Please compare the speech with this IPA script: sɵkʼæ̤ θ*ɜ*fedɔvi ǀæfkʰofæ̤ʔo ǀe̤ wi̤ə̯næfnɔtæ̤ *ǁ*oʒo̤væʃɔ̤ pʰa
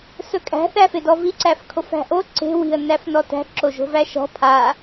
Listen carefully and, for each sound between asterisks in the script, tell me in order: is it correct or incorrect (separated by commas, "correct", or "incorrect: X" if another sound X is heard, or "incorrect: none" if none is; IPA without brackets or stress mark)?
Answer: incorrect: æ, correct